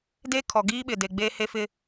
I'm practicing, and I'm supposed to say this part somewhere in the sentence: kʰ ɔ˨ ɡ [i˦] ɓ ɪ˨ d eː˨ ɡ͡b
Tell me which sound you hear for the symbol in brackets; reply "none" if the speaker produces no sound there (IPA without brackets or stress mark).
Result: iː˦